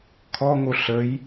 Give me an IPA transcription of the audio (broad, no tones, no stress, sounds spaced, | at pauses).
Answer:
kʰ ɔ ŋ o ɬ ə j